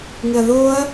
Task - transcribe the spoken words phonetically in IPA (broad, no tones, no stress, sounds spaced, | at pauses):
ŋ ɪ ɐ̯ ð oː ɐ̯